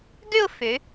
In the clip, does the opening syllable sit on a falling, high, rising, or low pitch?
falling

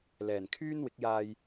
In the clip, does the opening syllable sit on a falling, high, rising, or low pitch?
low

